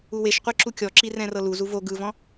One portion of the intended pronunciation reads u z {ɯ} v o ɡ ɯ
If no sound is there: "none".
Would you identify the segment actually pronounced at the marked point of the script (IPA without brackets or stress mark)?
u